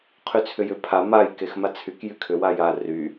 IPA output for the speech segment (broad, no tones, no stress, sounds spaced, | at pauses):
qʰ y t͡sʰ ʏ j ʏ pʰ a m a j k e x m a t͡sʰ y k j y kʰ ʏ w a j a r y